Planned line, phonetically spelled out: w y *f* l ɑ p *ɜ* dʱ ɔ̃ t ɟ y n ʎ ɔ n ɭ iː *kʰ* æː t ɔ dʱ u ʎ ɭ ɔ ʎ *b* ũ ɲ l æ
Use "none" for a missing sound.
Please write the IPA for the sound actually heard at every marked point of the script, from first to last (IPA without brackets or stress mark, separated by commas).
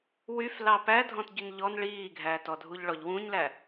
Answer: f, æ, ɡʱ, w